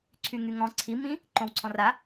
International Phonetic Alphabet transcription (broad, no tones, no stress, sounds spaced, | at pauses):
ǀʰ y ŋ y ŋ ɔ̃ ǀʰ i m ĩ | ǃ õ w ǀʰ ɔ̃ r a